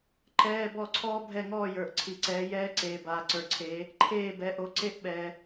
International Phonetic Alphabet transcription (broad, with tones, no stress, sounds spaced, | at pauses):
ǃ ɛː˧˥˧ b ɔ˦˨ ǀʰ ɔː˦˥ bʱ ɛ˦˨ ŋ ɔː˦˨ j ə˞˨ ʔ ǀʰ i˨ ǀ ɛː˨˦ j ɛː˦˥ ǀ eː˨ b aː˨ ǀ ə˞˨ ǀʰ eː˨˦ | ǃʰ eː˦˨ b ɛ˨˦ ʔ o˨˦ ǀ e˦˥ ʔ ɓ ɛː˨